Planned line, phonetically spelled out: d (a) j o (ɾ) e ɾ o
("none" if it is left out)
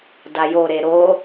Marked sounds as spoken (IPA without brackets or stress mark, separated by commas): a, ɾ